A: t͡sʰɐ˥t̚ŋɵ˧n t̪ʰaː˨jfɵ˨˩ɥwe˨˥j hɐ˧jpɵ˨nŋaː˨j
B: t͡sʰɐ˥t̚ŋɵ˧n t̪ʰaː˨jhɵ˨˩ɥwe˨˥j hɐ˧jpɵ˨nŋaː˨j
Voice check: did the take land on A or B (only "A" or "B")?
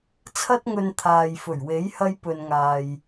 A